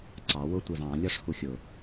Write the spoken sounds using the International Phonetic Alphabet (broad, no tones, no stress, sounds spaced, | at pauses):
ǀ ɑ w ʊ tʷ ɛ v ɑ̃ lʲ ɒ ʂ h u xʲ ʊ